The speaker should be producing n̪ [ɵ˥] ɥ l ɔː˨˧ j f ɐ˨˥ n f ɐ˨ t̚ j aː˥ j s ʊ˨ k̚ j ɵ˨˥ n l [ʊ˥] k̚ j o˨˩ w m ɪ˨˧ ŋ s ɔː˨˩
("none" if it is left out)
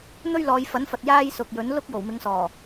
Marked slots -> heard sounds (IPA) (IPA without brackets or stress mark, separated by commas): ɵ˥, ʊ˥